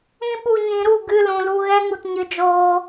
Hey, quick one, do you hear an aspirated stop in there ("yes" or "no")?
no